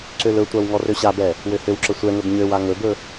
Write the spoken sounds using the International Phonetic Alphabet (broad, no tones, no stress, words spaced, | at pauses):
ǀølɵtʷaw ŋɔrøɕabɛ | wøhøwǁə sʷɛŋɵb ɲøwa ŋɵbɵ